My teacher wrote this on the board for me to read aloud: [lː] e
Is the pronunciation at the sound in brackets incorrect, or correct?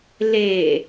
incorrect